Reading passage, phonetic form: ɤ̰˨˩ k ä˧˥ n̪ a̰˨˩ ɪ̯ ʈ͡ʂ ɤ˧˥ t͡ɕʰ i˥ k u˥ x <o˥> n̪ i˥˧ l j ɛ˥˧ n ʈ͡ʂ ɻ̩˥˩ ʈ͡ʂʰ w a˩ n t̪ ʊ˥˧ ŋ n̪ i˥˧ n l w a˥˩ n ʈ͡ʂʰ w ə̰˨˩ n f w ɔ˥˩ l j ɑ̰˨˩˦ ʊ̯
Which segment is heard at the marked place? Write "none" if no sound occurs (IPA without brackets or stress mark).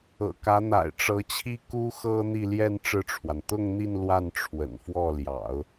ɤ˥